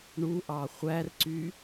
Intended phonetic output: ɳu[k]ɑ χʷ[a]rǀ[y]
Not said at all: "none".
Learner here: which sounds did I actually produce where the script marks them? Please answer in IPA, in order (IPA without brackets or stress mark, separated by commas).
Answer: ʔ, æ, y